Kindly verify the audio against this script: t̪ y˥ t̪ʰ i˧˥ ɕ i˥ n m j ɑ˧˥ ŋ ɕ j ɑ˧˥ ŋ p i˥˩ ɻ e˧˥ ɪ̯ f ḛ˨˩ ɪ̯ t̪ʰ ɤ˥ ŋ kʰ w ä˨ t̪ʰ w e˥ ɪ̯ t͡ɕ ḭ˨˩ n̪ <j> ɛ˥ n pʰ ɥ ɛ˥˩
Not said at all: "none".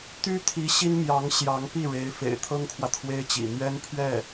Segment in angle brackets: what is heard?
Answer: ɥ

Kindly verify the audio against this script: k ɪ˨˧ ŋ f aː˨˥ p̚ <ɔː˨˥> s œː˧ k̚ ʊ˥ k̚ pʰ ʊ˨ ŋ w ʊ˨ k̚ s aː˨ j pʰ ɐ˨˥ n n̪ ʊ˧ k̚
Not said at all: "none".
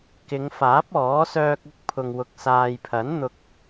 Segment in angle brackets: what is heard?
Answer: ɔː˨˥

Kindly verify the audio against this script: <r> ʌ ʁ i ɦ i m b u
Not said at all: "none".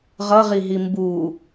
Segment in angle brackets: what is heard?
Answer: ʁ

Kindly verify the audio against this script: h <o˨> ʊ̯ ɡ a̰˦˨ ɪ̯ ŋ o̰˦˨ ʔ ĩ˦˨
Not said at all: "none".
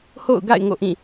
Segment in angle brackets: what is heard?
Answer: o̰˦˨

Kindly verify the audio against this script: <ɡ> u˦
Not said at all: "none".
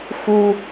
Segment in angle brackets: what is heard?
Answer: x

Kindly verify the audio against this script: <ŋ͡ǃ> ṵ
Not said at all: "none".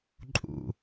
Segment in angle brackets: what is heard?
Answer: ǃʼ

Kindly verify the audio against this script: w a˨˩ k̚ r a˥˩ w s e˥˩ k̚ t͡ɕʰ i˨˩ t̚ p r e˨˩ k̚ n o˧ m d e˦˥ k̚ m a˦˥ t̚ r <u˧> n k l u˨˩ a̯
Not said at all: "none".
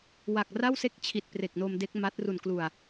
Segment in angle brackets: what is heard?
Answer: u˨˩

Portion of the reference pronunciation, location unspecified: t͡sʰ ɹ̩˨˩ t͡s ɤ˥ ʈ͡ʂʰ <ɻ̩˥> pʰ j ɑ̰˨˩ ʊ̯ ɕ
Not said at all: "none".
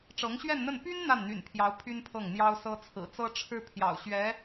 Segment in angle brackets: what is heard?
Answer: ɻ̩˥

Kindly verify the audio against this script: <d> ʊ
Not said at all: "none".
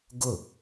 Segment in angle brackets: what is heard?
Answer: ɡ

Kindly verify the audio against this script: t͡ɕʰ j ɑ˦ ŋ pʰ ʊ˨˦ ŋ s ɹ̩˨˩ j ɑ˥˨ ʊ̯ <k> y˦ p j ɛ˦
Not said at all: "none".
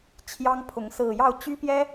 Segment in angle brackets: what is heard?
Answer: t͡ɕ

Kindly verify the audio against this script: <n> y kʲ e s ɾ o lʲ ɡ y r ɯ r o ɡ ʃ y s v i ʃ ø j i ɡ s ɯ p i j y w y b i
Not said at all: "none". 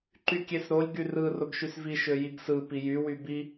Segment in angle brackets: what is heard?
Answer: ǃ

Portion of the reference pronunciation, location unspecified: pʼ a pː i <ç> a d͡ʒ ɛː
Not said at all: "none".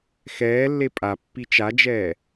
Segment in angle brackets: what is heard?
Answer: t͡ʃ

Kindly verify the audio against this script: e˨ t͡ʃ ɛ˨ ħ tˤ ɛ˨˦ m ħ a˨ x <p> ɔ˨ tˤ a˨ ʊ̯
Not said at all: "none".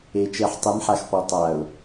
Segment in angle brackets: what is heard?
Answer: p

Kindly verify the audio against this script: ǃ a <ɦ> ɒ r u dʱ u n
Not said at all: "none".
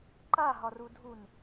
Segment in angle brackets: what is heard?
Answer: ɦ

